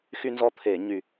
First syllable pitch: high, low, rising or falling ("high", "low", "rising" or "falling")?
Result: high